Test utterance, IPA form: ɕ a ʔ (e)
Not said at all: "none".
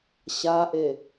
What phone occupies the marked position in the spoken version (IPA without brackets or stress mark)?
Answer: e